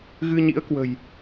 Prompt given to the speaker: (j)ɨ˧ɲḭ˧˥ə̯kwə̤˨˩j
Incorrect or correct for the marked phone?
incorrect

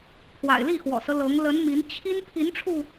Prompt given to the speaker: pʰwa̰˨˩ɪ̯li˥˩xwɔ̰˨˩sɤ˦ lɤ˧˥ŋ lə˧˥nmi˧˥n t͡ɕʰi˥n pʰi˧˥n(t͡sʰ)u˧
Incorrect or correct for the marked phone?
incorrect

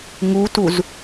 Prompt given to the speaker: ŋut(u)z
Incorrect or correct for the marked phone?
correct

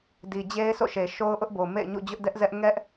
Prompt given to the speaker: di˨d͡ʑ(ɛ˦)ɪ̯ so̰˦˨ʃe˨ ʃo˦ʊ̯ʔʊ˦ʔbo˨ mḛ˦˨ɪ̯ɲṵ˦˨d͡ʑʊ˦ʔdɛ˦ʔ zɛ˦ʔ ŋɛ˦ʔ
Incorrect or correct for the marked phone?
incorrect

